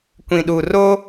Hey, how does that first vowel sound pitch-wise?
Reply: low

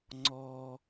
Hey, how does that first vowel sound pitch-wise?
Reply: low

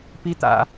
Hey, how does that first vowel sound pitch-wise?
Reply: high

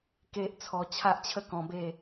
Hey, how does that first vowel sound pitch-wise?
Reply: high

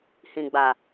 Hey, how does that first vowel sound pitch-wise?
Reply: low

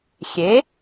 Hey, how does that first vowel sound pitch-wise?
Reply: rising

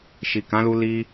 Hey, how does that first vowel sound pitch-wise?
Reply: low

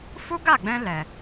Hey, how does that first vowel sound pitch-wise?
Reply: high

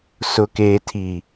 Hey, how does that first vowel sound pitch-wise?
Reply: low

